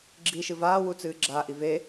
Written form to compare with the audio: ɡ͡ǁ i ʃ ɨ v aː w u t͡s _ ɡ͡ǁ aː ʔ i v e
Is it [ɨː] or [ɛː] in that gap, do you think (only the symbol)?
ɨː